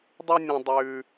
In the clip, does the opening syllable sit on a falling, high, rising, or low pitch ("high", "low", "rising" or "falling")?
high